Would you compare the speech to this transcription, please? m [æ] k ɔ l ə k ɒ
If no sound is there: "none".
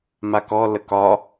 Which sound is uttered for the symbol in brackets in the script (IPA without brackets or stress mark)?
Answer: a